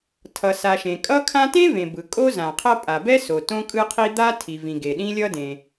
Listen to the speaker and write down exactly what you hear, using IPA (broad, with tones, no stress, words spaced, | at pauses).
tʰʌ˩sa˩ ʃẽ˩kʼʌ˥kʰã˥ tẽ˥vẽ˩bɯ˩ kʼo˥ zã˩qʰʌ˥ pʼa˩bɛ˥so˩ tõ˥kʼɯ˥qʰi˥ d̪a˥ tʰi˩vĩ˩ ɡe˩ɗĩ˥lʲʌ˥dẽ˩